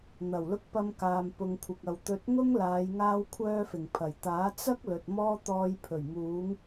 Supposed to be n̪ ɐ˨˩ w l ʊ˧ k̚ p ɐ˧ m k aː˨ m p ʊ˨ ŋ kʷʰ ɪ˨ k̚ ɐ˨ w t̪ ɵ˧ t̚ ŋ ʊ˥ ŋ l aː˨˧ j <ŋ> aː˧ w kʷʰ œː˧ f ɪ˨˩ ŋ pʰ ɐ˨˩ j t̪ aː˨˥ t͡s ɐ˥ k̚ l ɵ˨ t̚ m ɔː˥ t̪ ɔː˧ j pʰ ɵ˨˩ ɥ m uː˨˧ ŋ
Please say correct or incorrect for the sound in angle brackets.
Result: correct